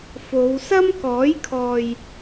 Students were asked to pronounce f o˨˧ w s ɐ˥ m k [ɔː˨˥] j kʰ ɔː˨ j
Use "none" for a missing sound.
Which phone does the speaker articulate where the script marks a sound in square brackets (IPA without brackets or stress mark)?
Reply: ɔː˨˥